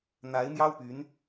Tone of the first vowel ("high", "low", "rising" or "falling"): rising